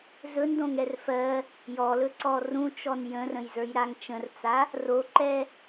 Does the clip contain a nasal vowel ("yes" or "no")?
yes